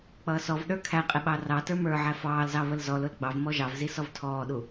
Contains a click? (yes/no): no